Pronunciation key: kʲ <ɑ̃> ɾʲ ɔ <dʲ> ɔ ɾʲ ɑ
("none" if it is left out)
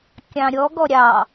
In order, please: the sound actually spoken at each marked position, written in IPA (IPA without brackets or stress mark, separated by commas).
ɑ̃, ɡ